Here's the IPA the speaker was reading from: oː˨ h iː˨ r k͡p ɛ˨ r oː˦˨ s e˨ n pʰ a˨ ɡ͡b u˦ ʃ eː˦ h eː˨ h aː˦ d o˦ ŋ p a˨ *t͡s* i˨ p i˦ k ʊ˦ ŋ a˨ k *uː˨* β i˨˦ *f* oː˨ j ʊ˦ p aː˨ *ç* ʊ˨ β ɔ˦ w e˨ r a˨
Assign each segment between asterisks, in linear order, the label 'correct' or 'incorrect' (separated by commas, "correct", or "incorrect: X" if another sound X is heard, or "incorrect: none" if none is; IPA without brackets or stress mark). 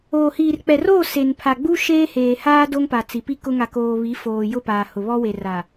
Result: correct, incorrect: oː˨, correct, incorrect: h